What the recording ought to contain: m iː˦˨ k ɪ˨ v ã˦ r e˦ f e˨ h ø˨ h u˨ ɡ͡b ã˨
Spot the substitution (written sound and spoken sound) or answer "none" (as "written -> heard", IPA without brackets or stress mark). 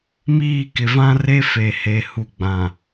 ø˨ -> e˨